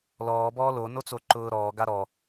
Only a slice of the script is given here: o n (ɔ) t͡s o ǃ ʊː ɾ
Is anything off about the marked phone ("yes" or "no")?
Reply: yes